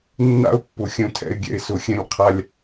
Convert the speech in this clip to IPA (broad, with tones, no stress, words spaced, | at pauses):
nːa̰˦ʊ̯pːʊ˨ xʲœ̃˧tʰɛ̰˧ɪ̯ɡʲɛ̰˧ɪ̯ sʊ˨xʲɛ̃˧lʲ qʰa˧lʲ